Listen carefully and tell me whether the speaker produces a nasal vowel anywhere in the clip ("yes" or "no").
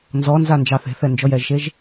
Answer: no